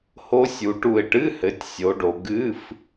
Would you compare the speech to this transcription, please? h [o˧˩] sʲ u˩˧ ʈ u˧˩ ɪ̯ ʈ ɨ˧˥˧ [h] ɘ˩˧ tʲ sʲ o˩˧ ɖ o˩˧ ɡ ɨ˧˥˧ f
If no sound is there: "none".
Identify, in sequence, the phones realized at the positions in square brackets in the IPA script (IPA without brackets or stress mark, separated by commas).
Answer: o˧˥, h